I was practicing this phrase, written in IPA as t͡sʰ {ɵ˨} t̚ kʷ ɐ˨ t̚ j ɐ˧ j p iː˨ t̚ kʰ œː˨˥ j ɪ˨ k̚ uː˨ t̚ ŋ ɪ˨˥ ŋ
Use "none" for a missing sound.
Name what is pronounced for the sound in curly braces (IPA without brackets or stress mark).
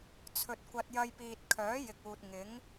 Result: ɵ˨